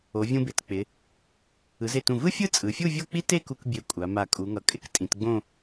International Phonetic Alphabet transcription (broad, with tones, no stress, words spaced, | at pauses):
o˩˧vʲũ˧be˩˧t k͡pɪ˩˧ | ɯ˩˧ze˧˩tũ˧˩ vɯ˥fʲɯ˥˧ t͡sʼɯ˩˧fʲu˥˧ vʲo˥˧k͡pi˥ te˥˧ku˧k bʲe˧˩kʷʼa˩˧ma˧˩ kʼu˩˧ŋʌ˩˧kʼɪ˥˧k tʼĩ˩˧tɡ͡bõ˥˧